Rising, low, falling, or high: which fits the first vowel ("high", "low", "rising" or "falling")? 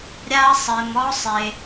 high